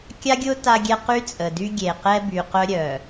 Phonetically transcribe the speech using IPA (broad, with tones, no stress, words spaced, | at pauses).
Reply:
kʲa˦ɡʲʊ˦ ta˦ɡʲɛ˦ qy˦t͡sʼə˨dy˦ ɡʲe˨qɛ˦by˨qœ˦ ɾʲœ˨